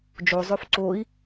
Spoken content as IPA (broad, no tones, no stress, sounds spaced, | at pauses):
d͡ʒ o zˤ ø f ǀ o i̯